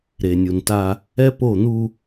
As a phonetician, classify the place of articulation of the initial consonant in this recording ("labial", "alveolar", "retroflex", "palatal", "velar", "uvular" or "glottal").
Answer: alveolar